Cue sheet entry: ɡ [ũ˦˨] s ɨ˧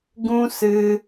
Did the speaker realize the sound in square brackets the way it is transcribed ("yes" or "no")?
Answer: no